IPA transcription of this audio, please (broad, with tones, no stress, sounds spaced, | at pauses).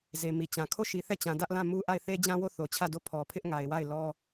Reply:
z e˨ m i˨ t͡ɕ ã˨ kʰ o˦˨ ʃ i˨ θ ɛ˦˨ t͡ɕ ã˨ d ä˦ ʔ l ã˦˨ m u˦ ʔ a˦˨ ɪ̯ θ e˦ d͡ʑ ã˦ w o˦˨ θ o˨ t͡ɕʰ ä˦˨ d o˦˨ pʰ ɔ˨ pʰ ɪ˦ ʔ ŋ a˨ ɪ̯ w a˦˨ ɪ̯ l ɔ˦